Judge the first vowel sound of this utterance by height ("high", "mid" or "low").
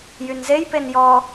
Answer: high